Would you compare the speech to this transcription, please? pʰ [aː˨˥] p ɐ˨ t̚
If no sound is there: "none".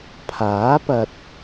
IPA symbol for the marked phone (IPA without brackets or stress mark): aː˨˥